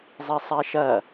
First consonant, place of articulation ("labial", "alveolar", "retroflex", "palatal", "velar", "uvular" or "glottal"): alveolar